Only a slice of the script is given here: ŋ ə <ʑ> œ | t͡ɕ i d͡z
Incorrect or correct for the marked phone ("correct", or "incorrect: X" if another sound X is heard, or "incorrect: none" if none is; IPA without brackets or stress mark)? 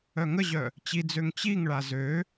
correct